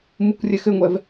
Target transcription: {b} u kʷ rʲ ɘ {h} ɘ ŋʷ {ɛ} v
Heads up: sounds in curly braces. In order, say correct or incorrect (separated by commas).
incorrect, incorrect, correct